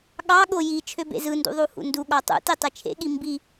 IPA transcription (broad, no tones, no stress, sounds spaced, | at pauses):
ɠ ɑ ɠ o j i t͡ʃʰ ø b ḛ z ɯ n d ṵ ðˤ u h ṵ n d u ɠ ɑ tˤ ṵ t i tˤ e t͡ʃʰ ḛ ɠ i m b i